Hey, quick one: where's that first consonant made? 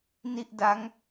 tongue tip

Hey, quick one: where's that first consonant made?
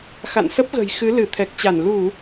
velum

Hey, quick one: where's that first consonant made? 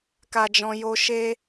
velum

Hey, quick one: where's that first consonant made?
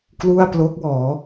velum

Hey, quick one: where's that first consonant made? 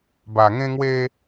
lips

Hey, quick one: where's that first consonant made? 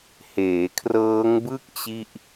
throat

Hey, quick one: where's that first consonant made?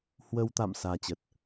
throat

